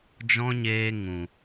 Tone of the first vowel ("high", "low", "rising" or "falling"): high